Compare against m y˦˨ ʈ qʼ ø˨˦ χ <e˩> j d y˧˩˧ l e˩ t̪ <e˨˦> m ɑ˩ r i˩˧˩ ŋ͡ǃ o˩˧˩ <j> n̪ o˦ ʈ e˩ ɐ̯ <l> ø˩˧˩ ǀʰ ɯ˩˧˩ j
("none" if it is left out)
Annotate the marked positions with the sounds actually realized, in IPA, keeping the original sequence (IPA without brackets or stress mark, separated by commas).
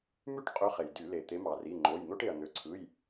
e˩, e˨˦, j, n̪